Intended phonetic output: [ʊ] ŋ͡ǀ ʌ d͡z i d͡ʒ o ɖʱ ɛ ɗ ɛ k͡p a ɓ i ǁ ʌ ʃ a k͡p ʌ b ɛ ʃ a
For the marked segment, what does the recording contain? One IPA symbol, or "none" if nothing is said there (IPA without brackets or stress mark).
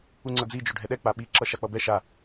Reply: u